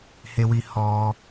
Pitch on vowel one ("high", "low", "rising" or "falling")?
high